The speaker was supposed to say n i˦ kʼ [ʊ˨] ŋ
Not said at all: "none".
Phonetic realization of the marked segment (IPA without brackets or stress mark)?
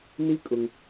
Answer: ʊ˨